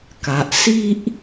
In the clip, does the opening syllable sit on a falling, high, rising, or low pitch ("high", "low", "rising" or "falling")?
low